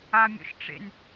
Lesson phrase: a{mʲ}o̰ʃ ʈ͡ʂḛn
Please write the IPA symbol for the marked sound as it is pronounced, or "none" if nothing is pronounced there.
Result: mʲ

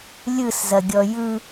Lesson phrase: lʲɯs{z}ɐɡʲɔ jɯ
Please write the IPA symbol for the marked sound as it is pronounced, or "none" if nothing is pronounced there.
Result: z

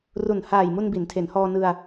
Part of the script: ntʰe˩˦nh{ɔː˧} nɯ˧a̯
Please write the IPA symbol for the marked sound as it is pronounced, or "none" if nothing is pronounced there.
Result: ɔː˧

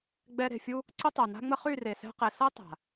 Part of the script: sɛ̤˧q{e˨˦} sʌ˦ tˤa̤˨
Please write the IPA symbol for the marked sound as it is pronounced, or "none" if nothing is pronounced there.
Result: e˨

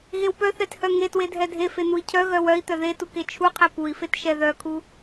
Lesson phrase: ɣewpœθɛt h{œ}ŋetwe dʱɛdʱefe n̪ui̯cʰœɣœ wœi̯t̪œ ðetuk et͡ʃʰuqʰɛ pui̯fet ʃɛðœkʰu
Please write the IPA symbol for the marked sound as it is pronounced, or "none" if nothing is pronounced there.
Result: œ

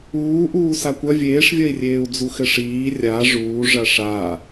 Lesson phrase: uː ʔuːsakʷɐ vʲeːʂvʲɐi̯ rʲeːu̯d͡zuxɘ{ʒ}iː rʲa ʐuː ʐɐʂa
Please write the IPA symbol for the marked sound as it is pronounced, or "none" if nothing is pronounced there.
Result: ʂ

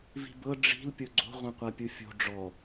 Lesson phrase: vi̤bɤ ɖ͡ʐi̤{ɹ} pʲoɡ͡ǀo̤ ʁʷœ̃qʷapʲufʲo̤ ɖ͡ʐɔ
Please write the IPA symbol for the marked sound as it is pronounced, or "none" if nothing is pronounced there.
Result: l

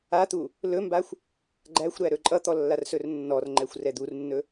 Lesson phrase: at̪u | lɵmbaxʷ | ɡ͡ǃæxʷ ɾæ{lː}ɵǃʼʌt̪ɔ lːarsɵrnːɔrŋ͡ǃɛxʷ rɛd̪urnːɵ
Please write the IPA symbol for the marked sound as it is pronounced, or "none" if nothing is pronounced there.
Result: ɾ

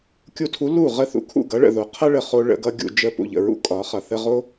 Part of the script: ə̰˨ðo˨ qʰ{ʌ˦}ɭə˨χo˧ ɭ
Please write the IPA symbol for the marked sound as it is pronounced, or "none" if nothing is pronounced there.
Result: ʌ˦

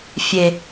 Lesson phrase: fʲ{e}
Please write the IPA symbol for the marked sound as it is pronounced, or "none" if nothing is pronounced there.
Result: e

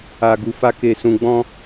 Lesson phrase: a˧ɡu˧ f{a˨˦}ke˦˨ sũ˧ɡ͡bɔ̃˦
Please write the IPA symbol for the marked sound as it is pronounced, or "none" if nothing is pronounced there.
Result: a˦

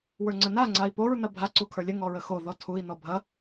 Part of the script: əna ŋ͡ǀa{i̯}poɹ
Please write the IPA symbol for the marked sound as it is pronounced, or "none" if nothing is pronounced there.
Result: i̯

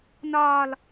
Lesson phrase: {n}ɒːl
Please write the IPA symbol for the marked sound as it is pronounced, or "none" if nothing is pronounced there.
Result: n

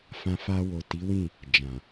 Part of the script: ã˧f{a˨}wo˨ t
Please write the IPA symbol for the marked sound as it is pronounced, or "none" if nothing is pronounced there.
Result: a˧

